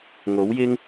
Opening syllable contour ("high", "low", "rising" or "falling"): rising